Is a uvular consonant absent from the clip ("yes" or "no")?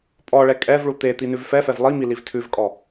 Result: yes